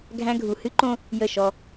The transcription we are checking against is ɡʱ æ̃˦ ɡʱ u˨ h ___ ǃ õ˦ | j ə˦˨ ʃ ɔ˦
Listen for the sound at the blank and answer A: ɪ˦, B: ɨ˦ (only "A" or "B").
B